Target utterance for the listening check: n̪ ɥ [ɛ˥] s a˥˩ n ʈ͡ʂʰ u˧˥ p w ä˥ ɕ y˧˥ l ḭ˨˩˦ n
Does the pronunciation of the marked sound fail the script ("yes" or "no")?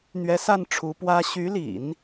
yes